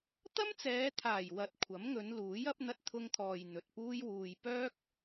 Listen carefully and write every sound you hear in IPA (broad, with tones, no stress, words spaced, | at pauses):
t̪ɐ˥mt͡sɛː˨˧t̪ʰaː˨˩j wɐ˨t̚ kʷʰɐ˨˥mŋɵ˨˧nluː˨˥j ɐ˨˥p̚n̪ɐ˧t̚t̪ʰʊ˧ŋt̪ʰɔː˨j n̪ɵ˨t̚puː˥jwuː˧j pœː˥k̚